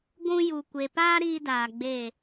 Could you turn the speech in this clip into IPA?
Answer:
ɡʷ ũ˧ j u˨ kʷ e˨ p aː˦ ɾ iː˦ d aː˨ ɡ͡b e˦˨

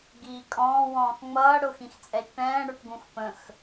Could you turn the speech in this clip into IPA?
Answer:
ɡ iː kʼ ɔ̃ː w ɔ̃ː x ŋ͡m ʌː ɽ ʊ x ĩ x t͡sʼ ɛ ʃ ʈ ɛ̃ː ɽ ə˞ ʈ ɡ ũ x p ə̃ x

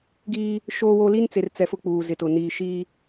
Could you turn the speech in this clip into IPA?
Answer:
ɡ iː˦ | ʃ oː˦ w o˦ l i˦ n t͡s e˨ r t͡s ɛ˨ f ʊ˦ k͡p uː˨ z ɪ˨ t ʊ˨ n iː˨ ʃ iː˦

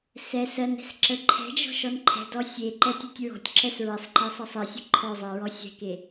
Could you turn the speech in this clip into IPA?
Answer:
s ɛ s ɜ n ɛ̤ s ǁ ə ǃʰ ɛ̤ d͡ʒ ɔ̤ ʃ ɔ n ǃʰ ɛ̤ d ɔ sʲ e ǃ ɛ tʲ e tʲ ɹ ɔ̤ tʲ ǁ ɛ s ɹ ə sˤ ǃ e sˤ ɜ sˤ ɜ sʲ ə ǃʰ ɔ zˤ ɜ ɹ ɔ sʲ ɛ̤ k e

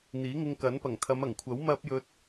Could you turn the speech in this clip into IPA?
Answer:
n̪ iː˨˥ ŋ ɪ˧ ŋ k ɐ˨˥ n p ɐ˨˩ ŋ t̪ʰ ɐ˨˧ m ɐ˨˩ ŋ kʷʰ ɐ˨˥ w m ɐ˥ p̚ j ɵ˧ t̚

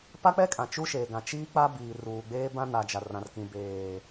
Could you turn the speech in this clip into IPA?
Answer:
p a˦ k͡p ɛ˦ kʼ ã˨ t͡ʃ u˦ ʃ eː˨ ɡ ã˨ t͡ʃ iː˦ k͡p a˦ b iː˨ r uː˨ ɡ͡b eː˦ b ã˦ n a˨ d͡ʒ a˨ r ã˨ r k ĩ˨ b eː˨

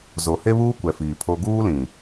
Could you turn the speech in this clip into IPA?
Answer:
z o˨ h e˦ β uː˦ kʷ ɛ˨ f iː˨ pʰ o˦ ɡ uː˦ l ĩ˨

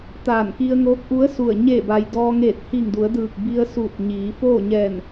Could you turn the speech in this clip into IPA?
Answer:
t̪ aː˧˩ n k i˧ ə̯ ŋ oː˧˥ k̚ ʔ u˧˥ ə̯ s u˧˩ ə̯ ɲ e˧˩ b a˩ j d ɔː˧ ŋ eː˧˩ t̚ h i˧˩ ŋ d u˩˧ ə̯ d ɯː˧˩ k̚ b i˧ ə̯ s uː˧˩ t̚ ɲ iː˩˧ f oː˥˨ ɲ ɛː˧˩ n

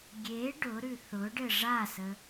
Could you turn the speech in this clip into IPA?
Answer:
ɡʲ e ɖ ʊ ɾ ʉ θ ʊ ɖ ɘ ʐ a s ə

